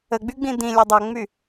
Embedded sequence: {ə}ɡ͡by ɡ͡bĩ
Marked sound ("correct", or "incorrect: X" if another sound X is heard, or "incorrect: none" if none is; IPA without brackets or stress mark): correct